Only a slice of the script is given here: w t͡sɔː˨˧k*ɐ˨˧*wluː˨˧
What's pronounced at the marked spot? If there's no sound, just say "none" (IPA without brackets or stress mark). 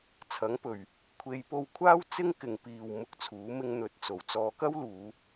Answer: ɐ˥